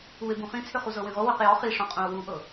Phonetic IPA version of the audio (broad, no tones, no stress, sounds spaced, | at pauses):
u e̯ b ũ χ ĩ t͡sʰ ʏ χ u z ɤ w ĩ ʁ o w ʏ q j ɔ χ i ʂ ɔ̃ qʼ ũ o̯ w u ʔ ɤ